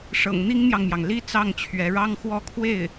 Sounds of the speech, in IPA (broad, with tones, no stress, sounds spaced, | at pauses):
ʂ ɤ̰˨˩ ŋ n̪ i˥ ŋ n̪ j ɑ˨ ŋ m j ɑ˩ ŋ l i˥ t͡s ɑ˥˩ ŋ t͡ɕʰ ɥ ɛ˧˥ ɻ ɑ˥ ŋ x w ɔ˥˧ kʰ w e˥˩ ɪ̯